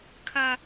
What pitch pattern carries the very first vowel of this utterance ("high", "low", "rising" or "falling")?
high